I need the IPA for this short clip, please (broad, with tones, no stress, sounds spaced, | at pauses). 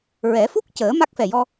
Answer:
ɹ ɛ˨˩˦ f u˦˥ k̚ c əː˨˩˦ m a˦˥ k̚ f ɛ˨˩ j ɔ˧